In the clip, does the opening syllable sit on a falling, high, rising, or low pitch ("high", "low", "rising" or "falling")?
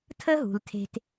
high